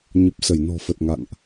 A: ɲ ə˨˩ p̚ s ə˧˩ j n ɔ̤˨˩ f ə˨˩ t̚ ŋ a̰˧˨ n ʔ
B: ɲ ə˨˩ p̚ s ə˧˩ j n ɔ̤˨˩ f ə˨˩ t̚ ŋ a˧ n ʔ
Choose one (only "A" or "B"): A